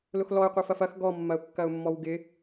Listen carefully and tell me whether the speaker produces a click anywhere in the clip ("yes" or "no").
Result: no